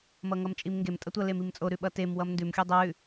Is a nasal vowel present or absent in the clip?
absent